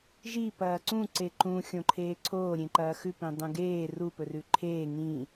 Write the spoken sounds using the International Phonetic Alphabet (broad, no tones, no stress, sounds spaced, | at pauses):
ʒ i p ɐː ǀ ũ ǀ e ǃ ũ xʲ õ ǃʰ eː ǀʰ oː ɾʲ ẽ ǃ ɐː x ʉ p ĩ dˤ ũ ɡ eː r u p ɵ r ʉ ǃʰ eː ŋ ĩ